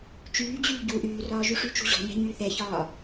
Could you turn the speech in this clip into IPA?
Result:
t͡ʃ yː d͡ʑ yː ɟ u ʔ yː r ɒː ʒ y ʂ y t͡ʃ ṳ ʑ ɔ̤ ɲ ɛ̤ ɲ yː θ ɛ ç ɒː

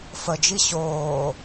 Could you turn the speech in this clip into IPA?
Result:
f ə d͡ʒ i ɕ oː

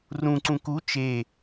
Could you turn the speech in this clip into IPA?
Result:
r ũ ǀ ũ k u t͡ʃ e

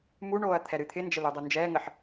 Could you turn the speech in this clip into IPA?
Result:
m u ɳ oː ɐ̯ t̪ʰ ɛ ɾ ɨ t̪ʰ ɪ n d͡ʒ ə l ɨ dˤ u n d͡ʒ ɛː ŋ ə ħ

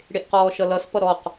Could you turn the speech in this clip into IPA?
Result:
ɽ e ʔ q ɔː ʃ ʌ l ʌ s p ʌ ɾ ɔ q

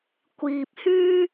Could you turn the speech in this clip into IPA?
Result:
kʷ iː˨ p̚ h yː˥

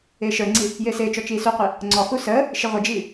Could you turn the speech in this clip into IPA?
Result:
ɪː ʃ ə˞ ŋ͡ǀ i | j ɪː s ɪː t͡ʃ ɔ t͡ʃ iː s u qʷ i | ŋ͡ǀ ɔ x u s əː | ʃ ɪ ʁʷ ɪ d͡ʒ iː

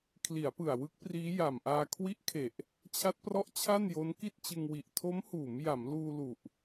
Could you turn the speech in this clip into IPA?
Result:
kʰ l i˩˦ a̯ p ɯ˨˩ a̯ w ɯ˦˥ k̚ p r iː˦˥ j a˨˩ m ʔ aː˧ kʰ w i˦˥ ʔ kʰ e˨˩ ʔ | t͡ɕʰ a˦˥ t̚ p r ɔ˦˥ ʔ t͡ɕʰ a˥˩ n j o˦˥ n k i˥˩ t̚ t͡ɕ ɯ˧ ŋ w i˨˩ ʔ tʰ o˦˥ m h uː˩˦ m j a˩˦ m l uː˧ l u˨˩ ʔ

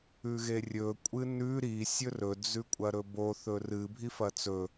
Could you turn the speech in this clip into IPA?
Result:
ʉ ɣ e rʲ ɵ kʷʼ ɨ n ʉ ɾ i sʲ ɵ r ɵ d͡z ʉ kʷʼ ɐ ɾ ɵ b o θ ɵ r ɨ bʱ i f ɐ t͡s ɵ

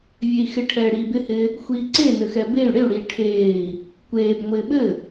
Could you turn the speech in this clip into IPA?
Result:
vʲ e i̯ x ɪ ʈʰ ɛː ɽ iː b ɪ h ɪː | xʷ iː ǀ e n ɘ x ɛ b e y̯ ɽ ɪ u̯ ɽ iː ʈʰ eː i̯ | kʷ eː b ŋʷ ɪː ɓ ɘ

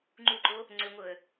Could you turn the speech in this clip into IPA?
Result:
ŋ͡ǃ u ǃ o | ŋ͡ǀ ʏ ŋʷ ɤ ə̯

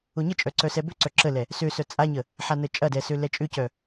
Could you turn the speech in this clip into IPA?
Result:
ʊ ɲ ə t͡ʃʼ œ ǀ œ s ɛ b ø ǀ œ ǁ ə l ɛ | s ø s œ t͡sʼ a ɲ ə | ħ a n ə t͡ʃʼ ɐ d ɛ s ø l ɛ t͡ʃʼ ʏ c œ

